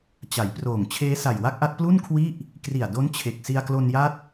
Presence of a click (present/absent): absent